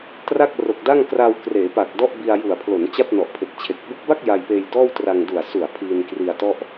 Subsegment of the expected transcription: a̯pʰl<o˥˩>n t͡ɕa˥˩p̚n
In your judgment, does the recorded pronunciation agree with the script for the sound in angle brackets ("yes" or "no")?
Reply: no